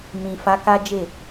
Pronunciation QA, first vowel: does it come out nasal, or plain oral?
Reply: nasal